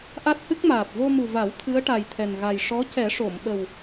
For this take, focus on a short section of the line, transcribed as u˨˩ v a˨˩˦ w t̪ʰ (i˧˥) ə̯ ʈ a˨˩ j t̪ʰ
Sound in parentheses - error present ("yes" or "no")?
yes